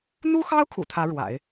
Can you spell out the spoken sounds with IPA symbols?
n̪ u˥ x ɑ˥ ʊ̯ kʰ ṵ˨˩ t̪ʰ ä˧˥ ɻ w a̰˨˩˦ ɪ̯

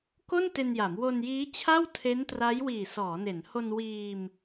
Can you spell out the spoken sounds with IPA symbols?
k o˥˩ n t e˧ n j a˩˦ m w o˧ n j iː˦˥ t͡ɕʰ a˥˩ w tʰ e˦˥ n t r a˦˥ j w iː˨˩ s ɔː˩˦ n e˩˦ n h o˧ n w iː˧ m

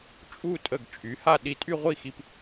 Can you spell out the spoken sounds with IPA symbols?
t͡ʃʼ u˥˧ tʼ ə˧˩ ɡ t͡ʃʼ y˩˧ h a˥˧ ɗ i˧ tʼ y˥˧ ʁʷ i˥˧ x i˧ p

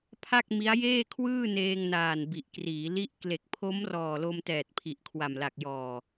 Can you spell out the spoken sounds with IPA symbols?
pʰ a˥˩ k̚ m i˦˥ a̯ j eː˥˩ kʰ w ɯː˥˩ n eː˧ ŋ n aː˨˩ n b i˨˩ ʔ k r iː˩˦ l i˦˥ ʔ k l e˨˩ k̚ pʰ o˦˥ m r ɔː˨˩ l o˧ m t ɛː˨˩ t̚ pʰ i˨˩ ʔ kʰ w a˨˩ m l a˨˩ k̚ j ɔː˨˩

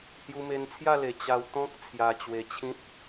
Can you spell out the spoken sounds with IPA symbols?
h j u˧ m e˧ n t͡sʰ j a˥˧ l e˨˩ t͡ɕ a˧ w t̪ ɔ̃˦ k̚ t͡sʰ j a˧ t͡ɕ w e˧ t͡ɕʰ ĩ˦ t̚

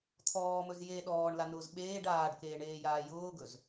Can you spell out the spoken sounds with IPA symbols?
t̪ʰ ɔː m ɵ z j e ɗ ɔː ɳ l a n ʊː z ɓ eː ɖ aː ɖ k eː ɳ eː j aː j ʊː ɡ ɵ z

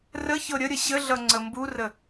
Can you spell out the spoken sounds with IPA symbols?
r ə ç ɤ ɾʲ ə ɾʲ ə ɕ ə ɮ ʌ ŋ͡ǀ ə m b u r ə

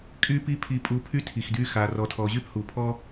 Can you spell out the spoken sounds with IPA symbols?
kʼ y˦ p i˦ pʰ i˧ pʼ u˧ pʰ y˦ tʰ i˨ x d y˦ x a˧ r ɔ˧ tʰ ɔ˧ ʑ y˦ p h u˨ pʰ ɔ˦

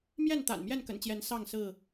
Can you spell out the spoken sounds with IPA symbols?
m j ɛ˥˨ n t̪ a̰˨˩ n m j ɛ˥˨ n k ə̰˨˩ n t͡ɕ j ɛ˨˦ n s ɑ˥˨ ŋ s ɹ̩˥˨

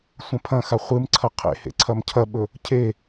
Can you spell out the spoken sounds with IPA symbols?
sʷ ɐ̃ pʰ ɐ̃ x a χʷ ɨ m ǀʰ ɐ qʰ ḛ h ḛ ǀʰ ɐ m cʰ ɐ ɓ ɵ | cʰ e

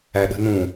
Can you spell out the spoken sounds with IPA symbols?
æ ɗ ə̤ n ũ

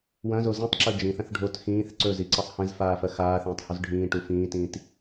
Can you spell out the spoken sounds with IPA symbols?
w ɐ̃ z o z ĩ tˤ ǁ ɵ d͡ʒ ĩ θ ɐ̃ θ ɖʱ o t x ĩː θ ǀ ɵ z i ǀ ɐ sˤ h ẽ z f aː f ɐ x aː θ ẽː tˤ h u z ɖʱ ĩː ʈ u f ĩː t ĩː t

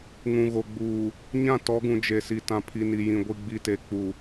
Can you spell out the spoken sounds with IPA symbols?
ŋ ũ˨ ɣ o˨ ɡ͡b uː˨ | ɲ ã˦˨ t ɔ˨˦ ɡ ũ˨ d͡ʒ e˨ s i˨ t ã˨ pʰ i˨ n i˨ j ĩ˨ ɡʷ i˨ ɡ͡b i˨ t e˨ k͡p u˨

